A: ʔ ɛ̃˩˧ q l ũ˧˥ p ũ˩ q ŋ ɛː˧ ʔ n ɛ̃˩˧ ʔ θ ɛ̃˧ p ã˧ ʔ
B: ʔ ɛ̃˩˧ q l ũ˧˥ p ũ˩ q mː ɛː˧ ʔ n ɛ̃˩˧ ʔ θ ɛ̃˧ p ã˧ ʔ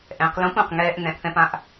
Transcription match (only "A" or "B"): A